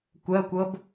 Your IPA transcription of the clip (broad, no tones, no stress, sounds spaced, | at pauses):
kʷ ɜ kʷ ɤ b